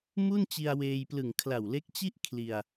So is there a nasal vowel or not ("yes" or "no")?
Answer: no